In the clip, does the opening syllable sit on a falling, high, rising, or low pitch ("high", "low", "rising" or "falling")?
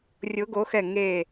rising